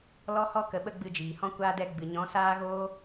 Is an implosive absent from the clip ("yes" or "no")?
no